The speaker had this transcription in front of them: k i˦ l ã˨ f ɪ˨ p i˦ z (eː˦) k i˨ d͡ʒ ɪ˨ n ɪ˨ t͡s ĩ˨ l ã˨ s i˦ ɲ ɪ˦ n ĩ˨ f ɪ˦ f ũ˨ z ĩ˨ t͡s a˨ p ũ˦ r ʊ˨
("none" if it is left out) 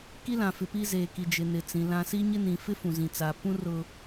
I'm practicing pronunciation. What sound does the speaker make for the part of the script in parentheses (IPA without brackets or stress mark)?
eː˨